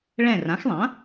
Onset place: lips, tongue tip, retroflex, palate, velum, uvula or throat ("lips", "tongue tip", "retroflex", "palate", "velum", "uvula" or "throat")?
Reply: retroflex